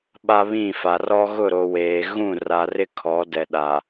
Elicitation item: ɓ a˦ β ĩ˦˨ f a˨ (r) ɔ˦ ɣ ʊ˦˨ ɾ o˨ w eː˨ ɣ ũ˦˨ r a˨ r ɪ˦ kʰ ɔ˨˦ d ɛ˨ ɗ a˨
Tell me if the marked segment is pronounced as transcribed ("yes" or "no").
yes